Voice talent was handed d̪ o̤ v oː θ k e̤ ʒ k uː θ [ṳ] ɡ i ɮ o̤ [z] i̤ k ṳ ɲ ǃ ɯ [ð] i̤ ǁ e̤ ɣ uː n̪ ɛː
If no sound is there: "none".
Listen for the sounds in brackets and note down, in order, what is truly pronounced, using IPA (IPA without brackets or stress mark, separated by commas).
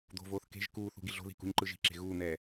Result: ṳ, ð, ʒ